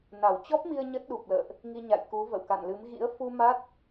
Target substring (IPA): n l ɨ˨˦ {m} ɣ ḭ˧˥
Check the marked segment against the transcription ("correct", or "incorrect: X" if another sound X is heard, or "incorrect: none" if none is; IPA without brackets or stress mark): correct